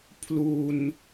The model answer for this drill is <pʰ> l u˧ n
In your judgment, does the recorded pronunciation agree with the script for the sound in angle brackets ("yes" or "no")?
yes